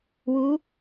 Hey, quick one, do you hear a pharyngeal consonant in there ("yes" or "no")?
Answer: no